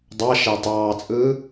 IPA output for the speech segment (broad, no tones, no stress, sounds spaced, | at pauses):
dˤ ɑ ʃ æ tˤ ɑː t͡sʼ ɯː